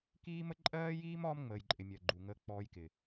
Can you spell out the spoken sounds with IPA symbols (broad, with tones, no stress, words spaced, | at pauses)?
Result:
kiː˦mə˦ ǃʼɜː˦jiː˦m ɒː˦mŋ͡məː˨jǃʼɪ˨ mʲɜ˨ɡ͡ǃu˨ŋəː˦ k͡pɔː˦jkɪ˨